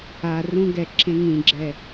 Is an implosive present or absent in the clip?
absent